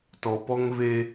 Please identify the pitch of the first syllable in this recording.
low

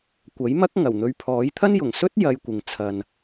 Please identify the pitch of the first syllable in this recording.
rising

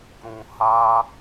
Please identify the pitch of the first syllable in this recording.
low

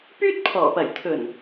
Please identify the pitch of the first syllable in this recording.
high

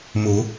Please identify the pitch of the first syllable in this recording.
rising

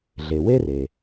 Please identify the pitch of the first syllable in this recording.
low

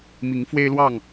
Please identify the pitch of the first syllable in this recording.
rising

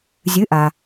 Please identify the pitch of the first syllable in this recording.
rising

